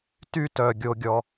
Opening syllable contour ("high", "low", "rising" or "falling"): high